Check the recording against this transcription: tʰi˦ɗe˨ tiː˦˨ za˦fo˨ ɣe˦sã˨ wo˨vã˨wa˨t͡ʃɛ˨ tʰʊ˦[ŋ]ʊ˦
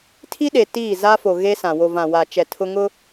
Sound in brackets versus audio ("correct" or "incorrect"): correct